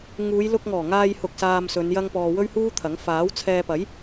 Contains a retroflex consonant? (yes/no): no